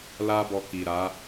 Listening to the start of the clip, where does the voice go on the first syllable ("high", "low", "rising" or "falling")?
high